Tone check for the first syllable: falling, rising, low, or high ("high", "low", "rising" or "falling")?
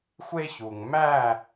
high